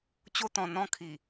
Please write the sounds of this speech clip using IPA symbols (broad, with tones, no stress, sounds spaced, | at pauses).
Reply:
t͡ɕ o˧ t̪ ɔ̃˨˩ n̪ ɔ̃˧ kʰ i˨˩